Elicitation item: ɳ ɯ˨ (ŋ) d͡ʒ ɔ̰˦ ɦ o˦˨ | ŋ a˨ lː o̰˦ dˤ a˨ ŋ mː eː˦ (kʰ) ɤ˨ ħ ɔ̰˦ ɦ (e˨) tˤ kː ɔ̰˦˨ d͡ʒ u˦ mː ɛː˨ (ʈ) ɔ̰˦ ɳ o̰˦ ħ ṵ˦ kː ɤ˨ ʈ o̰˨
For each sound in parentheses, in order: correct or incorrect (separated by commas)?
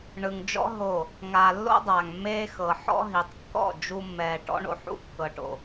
correct, incorrect, incorrect, correct